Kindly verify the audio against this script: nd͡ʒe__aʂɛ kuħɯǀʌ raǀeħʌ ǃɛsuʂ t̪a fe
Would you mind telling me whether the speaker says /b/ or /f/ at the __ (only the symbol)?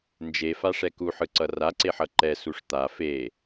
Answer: f